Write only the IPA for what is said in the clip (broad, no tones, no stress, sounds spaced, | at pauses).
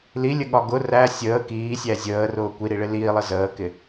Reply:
l i lʲ ə ɠ ɒ ɡ ʊ r æ sʲ əː k iː sʲ æ zʲ əː r ʊː kʷ i ɾ i ɭ ɪ l iː lˠ ə z əː k ɪ